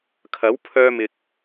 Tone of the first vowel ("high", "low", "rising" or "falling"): rising